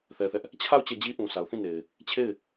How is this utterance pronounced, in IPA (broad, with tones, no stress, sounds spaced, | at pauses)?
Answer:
θ ɛ˦ θ ɛ˦ ʔ | t͡ɕʰ a˦˨ ʊ̯ t͡ɕ ɛ˦˨ d͡ʑ i˦ ʔ ũ˨ s a˨ ʊ̯ θ ĩ˦˨ n e˨ ɪ̯ | t͡ɕʰ e˦˨ ɪ̯